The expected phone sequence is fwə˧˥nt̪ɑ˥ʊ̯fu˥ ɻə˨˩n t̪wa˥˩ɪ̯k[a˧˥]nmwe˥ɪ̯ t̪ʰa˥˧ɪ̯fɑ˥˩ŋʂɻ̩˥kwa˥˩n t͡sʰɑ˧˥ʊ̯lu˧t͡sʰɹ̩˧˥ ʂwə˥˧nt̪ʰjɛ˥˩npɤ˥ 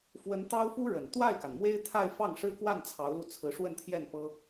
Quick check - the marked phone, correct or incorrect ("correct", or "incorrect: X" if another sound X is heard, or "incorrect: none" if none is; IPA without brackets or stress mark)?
incorrect: a˩